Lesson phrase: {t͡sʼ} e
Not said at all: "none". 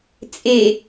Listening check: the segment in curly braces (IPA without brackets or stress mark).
t͡sʼ